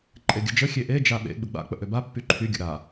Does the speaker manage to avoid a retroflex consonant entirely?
yes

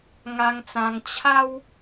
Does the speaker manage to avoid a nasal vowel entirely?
no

